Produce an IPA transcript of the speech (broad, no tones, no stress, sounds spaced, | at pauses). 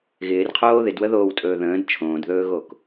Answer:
ɣ ɪː r qʰ oː ð ɪ d w ə ð oː w tʼ ɵː ð ə̃ː d t͡ʃʰ õː d ð ɵː ɣ o k